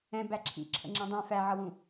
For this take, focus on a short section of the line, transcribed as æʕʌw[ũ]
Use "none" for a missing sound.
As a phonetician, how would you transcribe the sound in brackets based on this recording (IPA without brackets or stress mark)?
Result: ũ